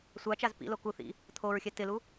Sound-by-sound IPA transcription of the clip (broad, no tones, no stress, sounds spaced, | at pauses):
sʷ a t͡ʃ a z p ḭ l o k u θ ḭ | t̪ʰ o ɹ xʲ ɛ t ɪ l u